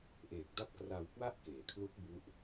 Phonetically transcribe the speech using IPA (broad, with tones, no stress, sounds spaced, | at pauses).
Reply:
ʔ e˨˩ k̚ d a˥˩ p̚ k r a˧ w k w a˥˩ ʔ k eː˩˦ kʰ l u˦˥ k̚ b u˦˥ ʔ